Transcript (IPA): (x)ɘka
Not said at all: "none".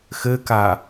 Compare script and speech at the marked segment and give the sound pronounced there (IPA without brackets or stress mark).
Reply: x